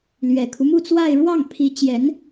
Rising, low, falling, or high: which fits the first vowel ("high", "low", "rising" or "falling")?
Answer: low